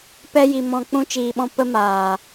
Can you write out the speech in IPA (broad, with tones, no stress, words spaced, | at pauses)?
pɛ˦ji˧mɔ̃˧k͡pũ˦ t͡ʃiː˧ɓɔ̃˦ pə˦maː˨